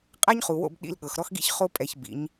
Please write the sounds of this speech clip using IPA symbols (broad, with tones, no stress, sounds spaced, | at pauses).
qʼ a˦ ɲ χ u˨ w o̰˦˨ b ɗ ḭ˧ l ɠ ɤ˨ x ɾ ɔ˦ x ɡ ḭ˦ ç χ o˦ pʼ ɛ˧ ç b ḭ˨˦ ɲ